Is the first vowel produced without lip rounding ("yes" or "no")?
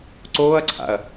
no